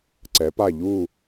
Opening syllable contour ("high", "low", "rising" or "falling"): rising